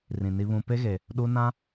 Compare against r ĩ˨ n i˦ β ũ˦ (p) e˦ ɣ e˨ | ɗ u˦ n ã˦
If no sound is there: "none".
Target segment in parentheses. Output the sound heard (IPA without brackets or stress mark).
p